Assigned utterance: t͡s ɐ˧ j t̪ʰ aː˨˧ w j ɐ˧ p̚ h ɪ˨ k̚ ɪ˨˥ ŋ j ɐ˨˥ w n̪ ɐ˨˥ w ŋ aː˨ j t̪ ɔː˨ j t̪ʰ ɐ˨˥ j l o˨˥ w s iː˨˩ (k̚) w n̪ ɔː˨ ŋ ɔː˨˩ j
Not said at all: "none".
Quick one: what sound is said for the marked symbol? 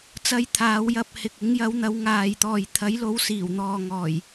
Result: none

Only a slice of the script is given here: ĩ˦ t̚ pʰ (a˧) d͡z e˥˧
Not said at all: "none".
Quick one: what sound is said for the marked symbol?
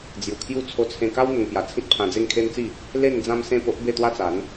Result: ã˧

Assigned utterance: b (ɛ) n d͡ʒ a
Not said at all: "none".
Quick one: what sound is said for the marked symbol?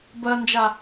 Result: ɜ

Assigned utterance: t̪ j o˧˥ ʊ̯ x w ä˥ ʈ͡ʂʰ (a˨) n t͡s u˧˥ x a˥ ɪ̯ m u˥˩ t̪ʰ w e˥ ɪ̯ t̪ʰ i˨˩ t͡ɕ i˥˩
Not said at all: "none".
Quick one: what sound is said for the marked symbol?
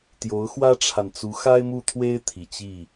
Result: a˨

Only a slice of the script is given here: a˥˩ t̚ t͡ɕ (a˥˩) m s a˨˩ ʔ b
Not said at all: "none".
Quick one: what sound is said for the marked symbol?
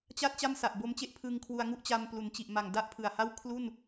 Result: a˥˩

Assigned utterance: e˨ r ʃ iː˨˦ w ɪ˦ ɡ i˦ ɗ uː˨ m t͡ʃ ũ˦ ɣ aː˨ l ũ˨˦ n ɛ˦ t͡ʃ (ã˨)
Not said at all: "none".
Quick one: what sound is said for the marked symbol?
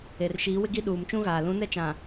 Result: ã˨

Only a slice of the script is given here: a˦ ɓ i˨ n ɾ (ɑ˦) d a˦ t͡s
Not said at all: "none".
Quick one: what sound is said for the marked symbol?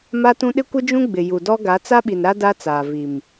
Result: a˦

